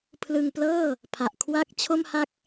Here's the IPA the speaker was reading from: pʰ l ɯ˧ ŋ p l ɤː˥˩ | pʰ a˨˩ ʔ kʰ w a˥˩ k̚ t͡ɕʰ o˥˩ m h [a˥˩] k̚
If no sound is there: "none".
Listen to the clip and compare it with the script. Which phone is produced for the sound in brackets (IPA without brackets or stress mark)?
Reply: a˥˩